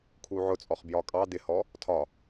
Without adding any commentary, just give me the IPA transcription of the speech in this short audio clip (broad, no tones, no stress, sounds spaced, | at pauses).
kʰ u ʕ ʊ t͡sʼ ɔ χ b j ɒ kʼ ɑ d̪ ɪ h ɔ | tʰ ɒ